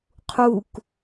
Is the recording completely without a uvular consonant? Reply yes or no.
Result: no